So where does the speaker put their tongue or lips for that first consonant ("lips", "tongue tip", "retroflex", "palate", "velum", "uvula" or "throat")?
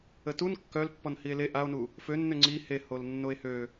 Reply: tongue tip